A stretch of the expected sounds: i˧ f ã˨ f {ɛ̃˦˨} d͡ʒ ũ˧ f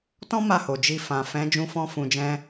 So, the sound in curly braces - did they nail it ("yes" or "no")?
no